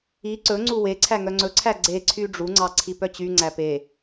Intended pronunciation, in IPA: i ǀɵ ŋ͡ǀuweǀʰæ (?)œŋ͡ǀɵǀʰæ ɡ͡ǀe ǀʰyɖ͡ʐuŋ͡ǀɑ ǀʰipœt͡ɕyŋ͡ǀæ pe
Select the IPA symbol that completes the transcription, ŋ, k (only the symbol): ŋ